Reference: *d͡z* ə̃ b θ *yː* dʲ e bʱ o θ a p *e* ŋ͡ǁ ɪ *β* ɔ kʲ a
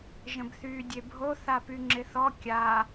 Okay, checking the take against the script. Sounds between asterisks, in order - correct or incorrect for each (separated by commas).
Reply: incorrect, correct, incorrect, incorrect